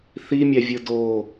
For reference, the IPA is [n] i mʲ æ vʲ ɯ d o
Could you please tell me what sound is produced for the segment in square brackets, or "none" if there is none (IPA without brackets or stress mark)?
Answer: θ